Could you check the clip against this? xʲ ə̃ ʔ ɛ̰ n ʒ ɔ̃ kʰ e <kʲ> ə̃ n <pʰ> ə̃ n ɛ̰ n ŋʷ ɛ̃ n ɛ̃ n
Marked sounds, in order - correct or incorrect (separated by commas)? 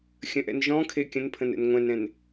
correct, correct